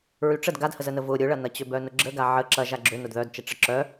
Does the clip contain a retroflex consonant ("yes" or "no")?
yes